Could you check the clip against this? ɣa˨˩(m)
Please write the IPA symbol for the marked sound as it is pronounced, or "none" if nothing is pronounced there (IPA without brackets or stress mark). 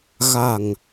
ŋ